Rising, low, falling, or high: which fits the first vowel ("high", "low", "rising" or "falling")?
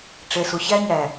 low